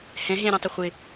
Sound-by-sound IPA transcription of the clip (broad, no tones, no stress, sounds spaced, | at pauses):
h ɛ̃ ɦ ẽ ɾʲ ɔ̃ tˤ ʊ χʷ ɪ